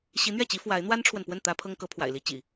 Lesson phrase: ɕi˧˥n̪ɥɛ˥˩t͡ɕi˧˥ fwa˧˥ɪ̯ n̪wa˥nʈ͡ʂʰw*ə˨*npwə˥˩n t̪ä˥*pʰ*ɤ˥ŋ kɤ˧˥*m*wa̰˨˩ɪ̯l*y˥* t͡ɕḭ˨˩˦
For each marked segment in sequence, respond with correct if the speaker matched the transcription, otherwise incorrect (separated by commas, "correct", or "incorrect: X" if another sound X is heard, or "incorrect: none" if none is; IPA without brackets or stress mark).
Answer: correct, correct, incorrect: pʰ, incorrect: i˥